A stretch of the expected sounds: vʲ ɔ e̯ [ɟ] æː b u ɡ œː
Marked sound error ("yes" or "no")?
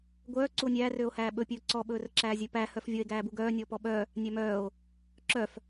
yes